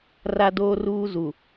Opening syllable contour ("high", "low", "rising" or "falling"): high